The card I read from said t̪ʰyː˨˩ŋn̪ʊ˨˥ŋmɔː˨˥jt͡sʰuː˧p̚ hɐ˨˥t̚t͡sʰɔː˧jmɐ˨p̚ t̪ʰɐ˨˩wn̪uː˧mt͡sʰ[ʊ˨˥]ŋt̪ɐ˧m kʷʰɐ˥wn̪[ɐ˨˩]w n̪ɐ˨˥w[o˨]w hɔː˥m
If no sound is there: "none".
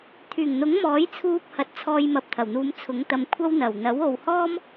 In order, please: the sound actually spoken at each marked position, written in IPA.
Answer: ʊ˨˥, ɐ˨˩, o˨

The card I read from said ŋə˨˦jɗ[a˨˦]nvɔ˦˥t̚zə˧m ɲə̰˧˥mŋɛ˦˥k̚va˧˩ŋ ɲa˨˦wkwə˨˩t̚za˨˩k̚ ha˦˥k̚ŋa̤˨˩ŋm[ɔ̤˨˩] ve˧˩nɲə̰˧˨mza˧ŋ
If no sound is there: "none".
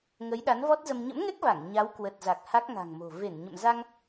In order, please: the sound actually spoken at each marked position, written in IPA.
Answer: a˨˦, o̤˨˩

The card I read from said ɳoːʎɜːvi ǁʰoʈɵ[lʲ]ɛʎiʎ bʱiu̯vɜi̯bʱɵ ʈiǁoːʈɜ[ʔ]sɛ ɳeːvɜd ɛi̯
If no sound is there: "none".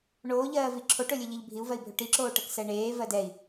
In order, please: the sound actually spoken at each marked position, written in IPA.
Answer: lʲ, k

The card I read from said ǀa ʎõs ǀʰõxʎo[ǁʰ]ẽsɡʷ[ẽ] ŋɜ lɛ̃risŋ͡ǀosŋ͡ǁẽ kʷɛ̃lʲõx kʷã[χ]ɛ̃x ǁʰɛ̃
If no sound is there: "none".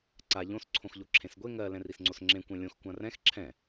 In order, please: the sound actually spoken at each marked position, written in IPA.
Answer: ǁʰ, e, r

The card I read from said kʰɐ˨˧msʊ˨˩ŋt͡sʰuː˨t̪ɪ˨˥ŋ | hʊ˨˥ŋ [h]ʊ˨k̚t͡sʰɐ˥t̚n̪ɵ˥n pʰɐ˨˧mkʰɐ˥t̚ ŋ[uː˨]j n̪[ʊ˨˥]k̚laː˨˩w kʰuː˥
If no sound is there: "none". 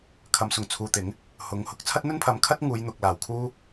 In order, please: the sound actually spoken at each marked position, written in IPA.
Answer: h, uː˨˧, ʊ˨

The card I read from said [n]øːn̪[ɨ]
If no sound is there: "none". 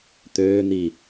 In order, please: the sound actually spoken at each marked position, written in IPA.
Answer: t̪, i

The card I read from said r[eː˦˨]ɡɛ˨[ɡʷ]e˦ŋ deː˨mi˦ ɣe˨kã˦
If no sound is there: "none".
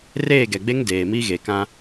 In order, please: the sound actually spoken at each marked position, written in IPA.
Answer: eː˦˨, ɡ͡b

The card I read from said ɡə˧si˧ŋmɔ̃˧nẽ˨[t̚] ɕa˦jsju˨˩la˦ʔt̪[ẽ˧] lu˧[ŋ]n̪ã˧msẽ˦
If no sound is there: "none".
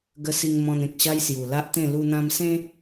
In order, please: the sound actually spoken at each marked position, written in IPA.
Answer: k̚, ẽ˥˧, none

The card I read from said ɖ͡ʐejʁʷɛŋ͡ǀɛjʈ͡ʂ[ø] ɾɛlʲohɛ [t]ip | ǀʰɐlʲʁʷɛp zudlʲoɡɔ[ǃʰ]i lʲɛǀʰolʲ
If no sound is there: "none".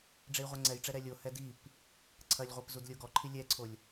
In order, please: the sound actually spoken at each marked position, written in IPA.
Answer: ɛ, d, ǃʰ

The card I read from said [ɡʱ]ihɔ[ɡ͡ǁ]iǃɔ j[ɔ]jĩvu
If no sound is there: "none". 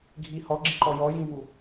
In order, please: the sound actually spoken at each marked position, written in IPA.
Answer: ɡʱ, ɡ͡ǁ, ɔ

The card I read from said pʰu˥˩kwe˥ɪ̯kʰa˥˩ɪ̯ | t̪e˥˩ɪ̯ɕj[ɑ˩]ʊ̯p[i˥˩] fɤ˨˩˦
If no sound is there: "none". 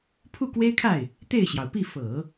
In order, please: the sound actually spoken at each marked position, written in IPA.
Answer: ɑ˩, i˥˩

